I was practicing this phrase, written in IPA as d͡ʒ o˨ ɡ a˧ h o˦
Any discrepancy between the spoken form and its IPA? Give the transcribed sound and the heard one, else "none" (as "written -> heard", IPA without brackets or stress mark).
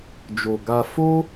h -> f